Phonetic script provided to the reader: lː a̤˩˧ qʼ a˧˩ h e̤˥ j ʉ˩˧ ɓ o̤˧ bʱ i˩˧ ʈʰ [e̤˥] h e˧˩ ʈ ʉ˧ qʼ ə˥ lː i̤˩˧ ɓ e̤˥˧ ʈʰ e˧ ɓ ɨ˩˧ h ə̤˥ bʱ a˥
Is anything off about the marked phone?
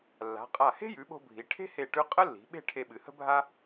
no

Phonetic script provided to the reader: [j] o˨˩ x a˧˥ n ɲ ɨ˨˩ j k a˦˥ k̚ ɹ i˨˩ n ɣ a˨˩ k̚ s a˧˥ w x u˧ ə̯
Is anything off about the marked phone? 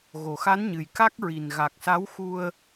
yes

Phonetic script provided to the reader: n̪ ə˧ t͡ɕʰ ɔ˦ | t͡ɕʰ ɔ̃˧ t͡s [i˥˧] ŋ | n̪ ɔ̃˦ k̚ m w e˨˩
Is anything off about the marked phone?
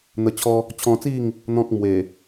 no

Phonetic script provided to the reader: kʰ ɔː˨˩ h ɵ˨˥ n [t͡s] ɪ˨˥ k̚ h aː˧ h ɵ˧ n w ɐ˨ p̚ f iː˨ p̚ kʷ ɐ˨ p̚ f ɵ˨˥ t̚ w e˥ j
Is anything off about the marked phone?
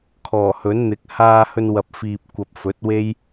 yes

